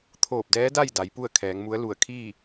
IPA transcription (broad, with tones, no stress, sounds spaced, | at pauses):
t̪ʰ oː˧˩ p̚ d ɛː˧˥ d a˥˨ j d a˩˧ j p u˥˨ ə̯ kʰ ɛː˩˧ ŋ m u˧˥ ə̯ l u˧˩ ə̯ kʰ iː˥˨